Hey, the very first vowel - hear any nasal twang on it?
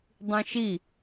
yes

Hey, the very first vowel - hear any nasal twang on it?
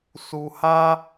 no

